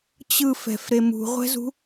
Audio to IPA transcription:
t͡ɕ ɯ f ɛ̤ f ɾ e m ṳ ʁʷ ɛ̤ z ṳ

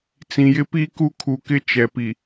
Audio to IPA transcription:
t͡s ĩ˨ j ɪ˦ p i˦ k u˦ kʰ u˨ k ɪ˦ t͡ʃ ɛ˨ p i˨

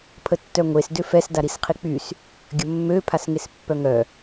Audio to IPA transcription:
pʰ ə tː œ ŋʷ e s d ø f ɛ s d a ɾ i s qʰ i k͡p y s | ɡʲ ə mː ø pʰ a s ŋ e s pː œ ŋ œ

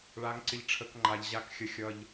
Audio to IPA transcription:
ɭ a˨˦ ŋ ǀ ɪ˨ ʎ ʈ͡ʂʰ ə˨˦ k ŋ͡ǃ a˨ ʎ ʑ a˨˦ k xʲ ə˨ xʲ ʌ˨ ʎ

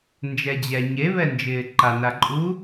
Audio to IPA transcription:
n d͡ʒ ɛ d͡ʑ ɛ ɲ e β ɛ n d͡ʒ ɪː ǃ a n a ǃʼ u

